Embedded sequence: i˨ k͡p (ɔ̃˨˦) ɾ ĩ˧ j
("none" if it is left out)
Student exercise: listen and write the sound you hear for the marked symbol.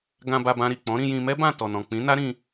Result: ɔ̃˨˦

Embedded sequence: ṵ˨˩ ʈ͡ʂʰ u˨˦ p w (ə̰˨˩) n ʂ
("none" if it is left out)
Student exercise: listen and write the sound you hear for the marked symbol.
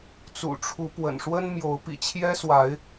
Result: ə̰˨˩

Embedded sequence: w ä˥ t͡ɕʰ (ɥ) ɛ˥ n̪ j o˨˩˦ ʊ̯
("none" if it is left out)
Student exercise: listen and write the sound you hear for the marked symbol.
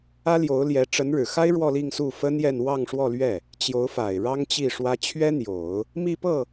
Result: ɥ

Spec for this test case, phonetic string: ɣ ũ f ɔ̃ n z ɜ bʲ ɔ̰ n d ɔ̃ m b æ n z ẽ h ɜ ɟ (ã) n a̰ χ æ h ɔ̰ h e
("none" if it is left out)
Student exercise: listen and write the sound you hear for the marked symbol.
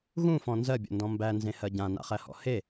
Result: ã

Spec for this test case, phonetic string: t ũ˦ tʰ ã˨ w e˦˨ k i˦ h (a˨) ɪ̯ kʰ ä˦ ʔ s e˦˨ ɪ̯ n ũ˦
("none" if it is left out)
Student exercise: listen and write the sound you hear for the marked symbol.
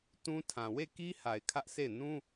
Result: a˨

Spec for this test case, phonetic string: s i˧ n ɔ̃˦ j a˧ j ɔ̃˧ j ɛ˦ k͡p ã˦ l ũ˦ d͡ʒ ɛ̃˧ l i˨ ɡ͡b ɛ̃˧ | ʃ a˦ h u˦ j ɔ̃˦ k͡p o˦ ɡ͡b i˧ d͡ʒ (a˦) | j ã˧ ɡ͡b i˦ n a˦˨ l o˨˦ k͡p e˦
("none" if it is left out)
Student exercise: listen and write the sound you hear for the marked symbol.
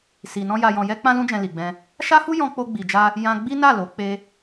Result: a˦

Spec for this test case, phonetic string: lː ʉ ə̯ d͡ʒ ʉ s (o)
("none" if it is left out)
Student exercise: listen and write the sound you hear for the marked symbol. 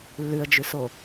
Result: o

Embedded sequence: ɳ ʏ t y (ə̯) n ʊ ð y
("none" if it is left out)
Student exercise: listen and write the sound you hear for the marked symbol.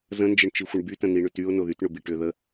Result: ʊ̯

